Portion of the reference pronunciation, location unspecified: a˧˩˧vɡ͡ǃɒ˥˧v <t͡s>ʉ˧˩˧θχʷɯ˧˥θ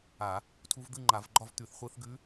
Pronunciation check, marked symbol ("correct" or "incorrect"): incorrect